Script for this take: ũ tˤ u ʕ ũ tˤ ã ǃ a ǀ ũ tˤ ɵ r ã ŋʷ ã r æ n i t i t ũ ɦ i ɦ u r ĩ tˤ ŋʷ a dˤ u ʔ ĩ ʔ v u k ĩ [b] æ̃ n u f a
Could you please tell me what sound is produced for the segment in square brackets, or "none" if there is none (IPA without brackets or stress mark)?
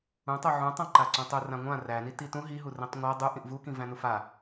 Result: v